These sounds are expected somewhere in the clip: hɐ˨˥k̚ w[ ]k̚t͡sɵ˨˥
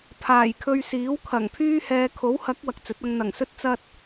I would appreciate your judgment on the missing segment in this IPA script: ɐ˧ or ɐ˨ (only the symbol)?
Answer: ɐ˨